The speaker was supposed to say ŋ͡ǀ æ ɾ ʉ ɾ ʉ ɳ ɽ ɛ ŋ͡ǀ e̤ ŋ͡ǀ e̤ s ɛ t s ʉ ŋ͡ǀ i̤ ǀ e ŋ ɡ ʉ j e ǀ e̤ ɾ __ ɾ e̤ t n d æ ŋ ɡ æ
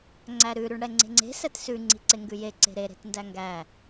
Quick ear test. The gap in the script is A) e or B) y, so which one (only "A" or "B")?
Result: A